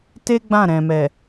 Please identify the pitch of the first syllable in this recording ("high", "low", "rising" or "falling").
high